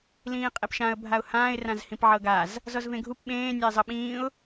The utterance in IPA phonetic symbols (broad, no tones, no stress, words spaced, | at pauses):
lĩːqʼepʃãə̯ bʱaʊ̯hãːɪ̯ rãzhĩpʕɤɡaz | zɔzvẽɡʱup ɓẽː nʲaɪ̯zˤɤɓĩːʊ̯